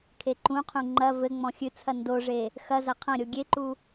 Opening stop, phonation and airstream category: aspirated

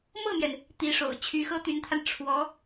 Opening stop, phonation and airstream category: plain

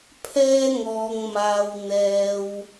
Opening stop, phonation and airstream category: aspirated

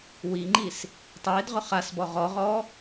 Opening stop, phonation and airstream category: click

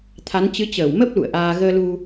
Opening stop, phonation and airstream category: aspirated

